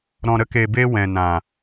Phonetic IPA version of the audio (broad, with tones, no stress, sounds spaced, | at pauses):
ɾ ɔ̃˨ ɾ ə˧ k e˨ b e˧ w ɛ̃˨ n ã˨